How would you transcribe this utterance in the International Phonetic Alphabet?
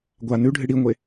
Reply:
ɡʷ a n ʉ ɖʱ ɨ ɽ i ŋʷ e

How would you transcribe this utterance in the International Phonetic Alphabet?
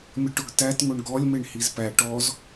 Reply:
mʲ ʊ ʈ ʊ ɡ t æ t ŋ ʊ ɳ ɡ ɔ lʲ m e ɳ h i z p æ ʈ ɔ z

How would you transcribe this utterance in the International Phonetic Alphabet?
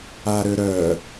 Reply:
a ɾ ø ɾ œ

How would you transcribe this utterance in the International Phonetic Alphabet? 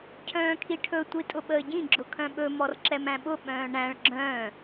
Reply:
cʰ œ̃ː kʰ i ʈʰ ɵ tʷ i tʼ ʊ ɓ əː ɟ ĩ ɡ͡ǁ ʊ kʰ œ̃ ɓ ɵ m ɔ r ǁ ɛ m æ̃ ɓ ʊ ɓ œ̃ː ɳ æ̃ ɭ ɡ͡ǁ œ̃ː

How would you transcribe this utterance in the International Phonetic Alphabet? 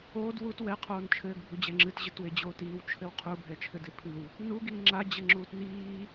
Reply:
oː d w u t w ɛ qʰ oː n t͡ʃʰ ɘː ɡ bʱ u d͡ʑ ɛ ŋ͡ǁ ɨ t ʑ ɘ t w e d͡ʑ oː t iː w t͡ʃʰ ɘ w qʰ u bʱ ɛ t͡ʃʰ ɘ d e pʰ ɨ w | n u ɡ iː ŋ͡ǁ a d͡ʑ ɘ ŋ͡ǁ uː t n iː

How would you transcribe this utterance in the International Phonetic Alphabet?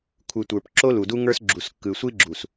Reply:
kʷʰ ɯ˨ tʷ ə˞˨ p ǁ o˦ l u˨ d u˦ ŋ ə˞˦ s ɡ͡ǁ u˨ s kː ɯ˨ sʷ i˦ ɡ͡ǁ u˨ s

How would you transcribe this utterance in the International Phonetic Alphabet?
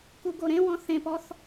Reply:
k u ɡ o ɾ ẽ w ɔ̃ θ ẽ p ɔ θ

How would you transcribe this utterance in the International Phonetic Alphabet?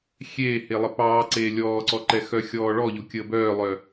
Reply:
xʲ eː h e lˠ ə p ɑː ǀ eː lʲ ɔː ǀ ɔ ǃ ɛ x œ xʲ ɔː ɭ ɔ ʎ o kʲ əː b œː lˠ œ

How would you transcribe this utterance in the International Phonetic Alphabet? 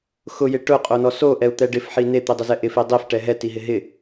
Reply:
x ʊ j ɪ ʈ ʊ qʼ o n ɔ s o ʔ ɛ u̯ t̪ ɛ ɖ ɪ f ħ i n e t̪ i dˤ ʊ z ɛ ʔ ɪ f i dˤ i f ʈ ɛ ɦ ɛ t i ɦ ɪ ɦ ɪ

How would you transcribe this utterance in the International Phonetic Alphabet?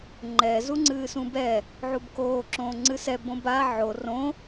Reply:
ŋ͡ǃ ɛ z u ŋ͡ǀ ɨː s ũ b ɛ | ʕ u b k oː ǁ õː ŋ͡ǀ ɨ s ɛ b õ b a ʕ o r õ

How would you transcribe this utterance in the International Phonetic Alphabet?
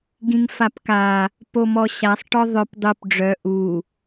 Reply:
ɡ ĩ ŋ f a p k a | p o m ɔ ɕ a sˤ ʈ ɔ ðˤ œ p dˤ u p ɖ͡ʐ œ ʔ u

